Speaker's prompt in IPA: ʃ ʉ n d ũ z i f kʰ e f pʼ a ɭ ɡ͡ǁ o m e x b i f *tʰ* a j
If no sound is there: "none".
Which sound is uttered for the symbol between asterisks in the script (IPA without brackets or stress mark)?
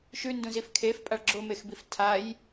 tʰ